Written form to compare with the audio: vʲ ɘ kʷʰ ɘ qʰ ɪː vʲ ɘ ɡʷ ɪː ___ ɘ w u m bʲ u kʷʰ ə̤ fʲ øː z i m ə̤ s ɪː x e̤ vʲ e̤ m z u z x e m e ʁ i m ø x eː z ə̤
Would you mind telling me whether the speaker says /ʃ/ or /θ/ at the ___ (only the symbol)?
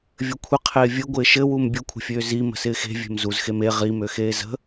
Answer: ʃ